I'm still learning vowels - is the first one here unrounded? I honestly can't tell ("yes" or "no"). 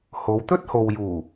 no